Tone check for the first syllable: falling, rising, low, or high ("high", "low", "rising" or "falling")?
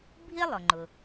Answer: high